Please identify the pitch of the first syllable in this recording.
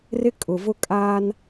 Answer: high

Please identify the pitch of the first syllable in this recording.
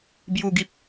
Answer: low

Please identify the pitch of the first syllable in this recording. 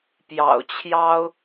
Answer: low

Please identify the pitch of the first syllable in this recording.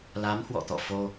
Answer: rising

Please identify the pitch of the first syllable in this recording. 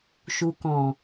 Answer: low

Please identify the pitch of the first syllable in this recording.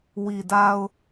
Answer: low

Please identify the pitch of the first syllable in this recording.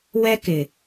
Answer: high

